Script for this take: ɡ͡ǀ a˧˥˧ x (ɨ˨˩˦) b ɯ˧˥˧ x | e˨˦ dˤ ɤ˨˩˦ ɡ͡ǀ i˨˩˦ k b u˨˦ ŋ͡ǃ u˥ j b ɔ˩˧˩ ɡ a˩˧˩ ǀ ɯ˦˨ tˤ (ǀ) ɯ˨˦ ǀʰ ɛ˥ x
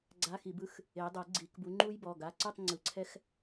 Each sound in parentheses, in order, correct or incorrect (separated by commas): incorrect, incorrect